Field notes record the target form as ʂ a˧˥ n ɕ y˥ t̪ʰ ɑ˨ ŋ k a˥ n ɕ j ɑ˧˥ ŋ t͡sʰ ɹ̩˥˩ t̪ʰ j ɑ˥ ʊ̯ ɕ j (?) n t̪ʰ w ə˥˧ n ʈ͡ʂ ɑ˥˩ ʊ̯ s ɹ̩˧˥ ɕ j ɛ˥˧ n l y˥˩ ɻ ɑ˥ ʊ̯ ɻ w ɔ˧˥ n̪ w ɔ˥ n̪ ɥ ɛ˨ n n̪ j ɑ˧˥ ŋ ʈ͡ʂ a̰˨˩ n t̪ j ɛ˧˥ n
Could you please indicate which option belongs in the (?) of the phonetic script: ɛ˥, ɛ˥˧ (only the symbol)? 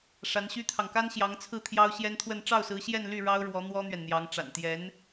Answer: ɛ˥